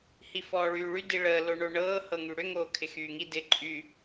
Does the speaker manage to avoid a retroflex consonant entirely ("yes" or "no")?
no